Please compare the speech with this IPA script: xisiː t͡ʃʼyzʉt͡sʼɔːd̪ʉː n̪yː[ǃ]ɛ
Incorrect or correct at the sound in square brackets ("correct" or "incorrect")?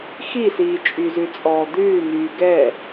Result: incorrect